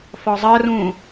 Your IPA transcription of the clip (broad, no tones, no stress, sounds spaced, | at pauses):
f ɒ zˤ ɜ r ũː